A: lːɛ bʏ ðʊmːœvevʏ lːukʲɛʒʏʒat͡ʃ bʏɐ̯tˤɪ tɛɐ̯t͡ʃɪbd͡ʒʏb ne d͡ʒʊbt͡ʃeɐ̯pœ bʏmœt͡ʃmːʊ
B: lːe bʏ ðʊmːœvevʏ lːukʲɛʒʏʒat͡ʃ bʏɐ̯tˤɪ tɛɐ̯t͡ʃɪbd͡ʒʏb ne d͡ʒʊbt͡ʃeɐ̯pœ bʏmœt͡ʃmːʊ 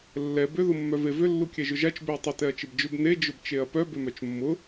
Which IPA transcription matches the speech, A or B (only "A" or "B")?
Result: A